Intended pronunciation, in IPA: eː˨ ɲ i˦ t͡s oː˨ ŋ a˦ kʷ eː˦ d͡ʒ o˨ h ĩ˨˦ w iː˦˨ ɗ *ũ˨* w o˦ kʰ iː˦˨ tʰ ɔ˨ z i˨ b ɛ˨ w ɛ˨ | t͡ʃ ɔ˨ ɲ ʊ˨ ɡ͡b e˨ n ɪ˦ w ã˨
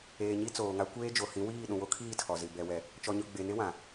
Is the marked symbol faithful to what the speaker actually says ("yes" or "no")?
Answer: yes